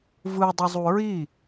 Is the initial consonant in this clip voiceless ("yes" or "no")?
no